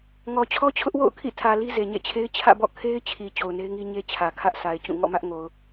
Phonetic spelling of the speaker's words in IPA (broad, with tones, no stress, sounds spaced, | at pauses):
ŋ ɔ˨ t͡ɕʰ ɔ˦ t͡ɕʰ ʊ˦ ʔ w o̰˦˨ ʊ̯ kʰ ḭ˦˨ tʰ ä˨ l i˦ z e˨ ɲ ḛ˦˨ t͡ɕʰ e˦ ɪ̯ t͡ɕʰ ä̰˦˨ b ɔ̰˦˨ kʰ e˦ ɪ̯ t͡ɕʰ i˨ t͡ɕ o˨ ʊ̯ n e˦ ɪ̯ ŋ i˦ ɲ e˦ t͡ɕʰ ä˨ kʰ ä˦ ʔ sʰ a˨ ɪ̯ t͡ɕ ũ˦˨ ŋ ɔ̰˦˨ m ä˦ ʔ ŋ o˨ ʊ̯